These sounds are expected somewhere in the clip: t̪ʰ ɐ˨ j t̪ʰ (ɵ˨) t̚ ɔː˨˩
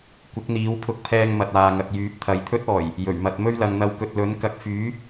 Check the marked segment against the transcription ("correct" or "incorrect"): incorrect